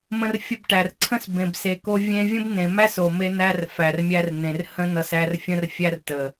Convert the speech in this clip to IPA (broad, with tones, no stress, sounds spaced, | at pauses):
m ə̃˧ r fʲ ə˧ b ʈ æ˨ r ǀʰ ə̃˦ s b ẽ˨ b s e˨ k o˧ vʲ ẽ˧ vʲ ə̃˦ b n ẽ˨ m æ˦ s o˨ m e˧ n̪ æ˧ r f æ˨ r mʲ æ˧ r n̪ ẽ˨ r h ə̃˦ n ʌ˧ s æ˧ r fʲ ə̃˦ r fʲ æ˦ r t ə˨